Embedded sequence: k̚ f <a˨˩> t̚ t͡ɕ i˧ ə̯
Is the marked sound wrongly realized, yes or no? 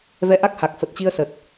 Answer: yes